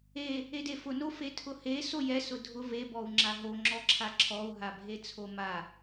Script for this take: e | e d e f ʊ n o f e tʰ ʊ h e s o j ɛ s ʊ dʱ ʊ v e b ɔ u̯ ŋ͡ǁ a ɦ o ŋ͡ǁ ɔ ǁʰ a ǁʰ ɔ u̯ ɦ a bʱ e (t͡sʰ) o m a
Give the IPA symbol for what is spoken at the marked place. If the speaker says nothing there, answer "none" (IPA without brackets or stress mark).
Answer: t͡sʰ